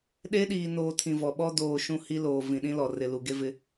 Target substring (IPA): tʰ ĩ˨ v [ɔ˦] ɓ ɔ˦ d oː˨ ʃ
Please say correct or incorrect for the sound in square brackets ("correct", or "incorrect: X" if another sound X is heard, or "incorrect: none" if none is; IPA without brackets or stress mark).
incorrect: ɔ˨